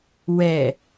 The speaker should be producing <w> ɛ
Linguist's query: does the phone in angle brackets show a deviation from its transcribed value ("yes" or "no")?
no